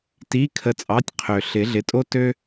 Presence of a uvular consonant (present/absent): present